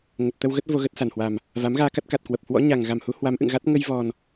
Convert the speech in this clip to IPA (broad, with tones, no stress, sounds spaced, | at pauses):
ŋ ə˨˩ p̚ t̪ ə˧ w ɣ ə˦˥ t̚ v o˧ ɣ ə˦˥ t̚ s a˨˩ n h w a˨˩ m | v a˨˦ m ɣ aː˧ k a˦˥ t̚ k a˨˩ t̚ k w ə˨˩ p̚ h w ɔ̰˧˥ ɲ a˨˩ ŋ ɣ a˨˩ m h u˨˦ h w a˨˦ m ʔ ɨ̰˧˨ ŋ ɣ a˦˥ t̚ ŋ ə˧ j v ɔ˨˩ n